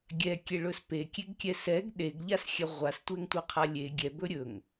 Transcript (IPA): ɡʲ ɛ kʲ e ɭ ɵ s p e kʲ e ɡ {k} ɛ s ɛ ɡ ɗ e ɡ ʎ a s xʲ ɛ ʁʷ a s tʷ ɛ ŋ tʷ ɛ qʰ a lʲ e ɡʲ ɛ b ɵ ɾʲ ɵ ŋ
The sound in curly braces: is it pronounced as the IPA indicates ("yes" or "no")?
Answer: no